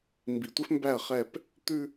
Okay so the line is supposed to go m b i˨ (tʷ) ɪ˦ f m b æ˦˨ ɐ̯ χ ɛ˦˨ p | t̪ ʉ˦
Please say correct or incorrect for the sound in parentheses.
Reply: correct